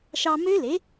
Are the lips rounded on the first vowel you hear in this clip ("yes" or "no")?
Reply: no